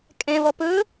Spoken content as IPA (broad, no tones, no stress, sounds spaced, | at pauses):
kʼ ɛ̃ v ɔ p ɵ